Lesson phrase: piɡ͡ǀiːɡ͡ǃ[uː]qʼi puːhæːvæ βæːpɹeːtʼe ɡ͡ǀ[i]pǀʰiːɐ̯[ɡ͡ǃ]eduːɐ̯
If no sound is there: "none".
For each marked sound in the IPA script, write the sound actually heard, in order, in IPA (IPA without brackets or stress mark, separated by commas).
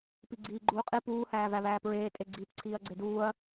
uː, iː, ɡ͡ǀ